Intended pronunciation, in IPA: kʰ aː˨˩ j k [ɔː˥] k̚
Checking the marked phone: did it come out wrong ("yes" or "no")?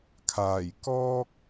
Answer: no